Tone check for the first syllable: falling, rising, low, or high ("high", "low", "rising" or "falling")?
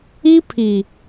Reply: high